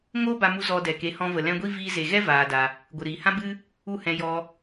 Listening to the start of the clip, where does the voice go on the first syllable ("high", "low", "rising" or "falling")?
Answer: high